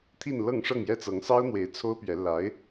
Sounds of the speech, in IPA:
t̪ʰ i˥˧ n l ɤ˥˧ ŋ ʂ ɤ˥˩ ŋ j ɛ˥ t͡s ɤ˧˥ ŋ s ɑ˥ ʊ̯ n̪ w e˧˥ ɪ̯ t͡sʰ o˥ ʊ̯ p ɥ ɛ˧˥ l a˧˥ ɪ̯

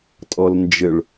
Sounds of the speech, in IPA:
tʼ ɔ l n d͡ʒ ɘ ɭ

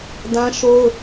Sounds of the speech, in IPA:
d ã˦ ʃ o˦ ʊ̯

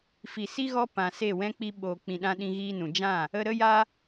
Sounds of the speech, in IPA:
f i˨ s i˦ ɣ ɔ˦ p ã˨ s e˦˨ w ɛ̃˦ k͡p i˦ ɓ oː˧ k͡p ĩ˧ ɗ ã˦ ɗ ĩ˧ ɣ iː˧ n ũ˨ d͡ʒ ã˦˨ | ə˧ ɾ ə˦ j a˦

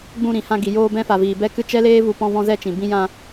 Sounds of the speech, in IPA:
ɡ͡b ũ˧ ɾ ĩ˨ h ã˧ ɡ i˨ j oː˧ b ɛ̃˧ f a˨ v iː˨ b ɛ˧ k ɨ˧ t͡ʃ ɛ˦ l eː˦ v u˧ p ɔ̃˧ v ɔ̃˧ z ɛ˧ t͡ʃ ĩ˨ b ĩ˧ j ã˧

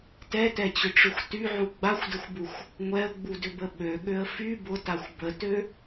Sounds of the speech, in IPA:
t ɛ t ɛ t͡ɕ ʏ ʈ͡ʂ ʏ xʷ t y ʕ u ɡ͡b a xʷ d ə xʷ b u xʷ | ŋʷ ɛ ə̯ ɡ͡b u d ʏ b ə ɓ ø ɠ ø ə̯ f y b ʊ t a xʷ b ə t ø

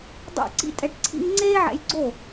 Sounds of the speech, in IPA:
dˤ o̰˦˨ ǀ ḭ˦ tʼ ɛ˧ ʈ ǀʰ ḭ˦ ŋ ŋ͡ǀ eː˦ ʕ ɛ̰˧ j ɡ͡ǀ o˦˨

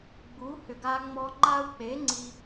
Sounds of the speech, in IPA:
ɡ͡b u˨˥ h ʏ˨ ɡ a˦ ŋ͡m ɔ˦ ŋ͡ǃ a˦ u̯ k͡p e˨˥ ŋ͡ǀ i˦

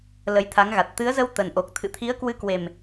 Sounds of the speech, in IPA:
l ə˨˦ j t̪ʰ a˨˦ ŋ ɣ a˨˩ t̚ t̪ ɨ˨˦ ə̯ z ə˧ w t̪ ə˨˩ n ʔ o˨˩ k̚ t̪ʰ ɨ̰˧˨ t̪ʰ i˨˦ ə̯ k w ɨ˨˦ k w e˨˩ m

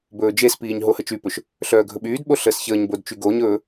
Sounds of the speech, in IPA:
b ɵː d͡ʒ e s p iː ɲ ɦ o h ə t͡ʃ y p ɵ ʃ | ɬ œː ɡʱ ɵ ɓ yː d ɓ o ɬ əː s ç əː ɲ b o d t͡ʃ y ɡ o ɲ ɵː

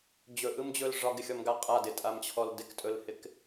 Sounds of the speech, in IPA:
d͡ʑ ɵ ʔ ɯ m d͡ʑ ɵ l ʐ ɒ ɡ ɪ xʲ ɔ m ɡ a qʼ a d ɪ tʼ a m t͡ɕʰ ɔ l d ɪ k tʼ ɵ l h ɪ k

